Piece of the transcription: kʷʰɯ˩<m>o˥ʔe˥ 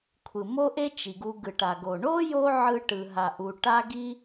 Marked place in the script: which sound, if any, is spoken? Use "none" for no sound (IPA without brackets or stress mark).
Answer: m